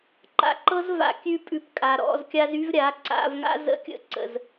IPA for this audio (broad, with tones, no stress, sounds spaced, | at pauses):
ǃ a̰˧ ǃ ɤ˦ z v a̰˧ kʲ ʉ˦ pʼ ʉ˧ p kʼ a˨ ɾ ɔ̰˧ z kʲ a˦ z y˦ v ɾʲ a˨˦ ǀ a̰˧ v ŋ a̰˦ z ə̰˦˨ kʲ ə̰˦ ǀ ə̰˨ z